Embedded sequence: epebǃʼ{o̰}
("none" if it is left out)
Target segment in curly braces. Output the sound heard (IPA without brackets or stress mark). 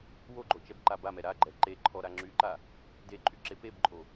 o